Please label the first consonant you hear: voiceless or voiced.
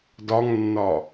voiced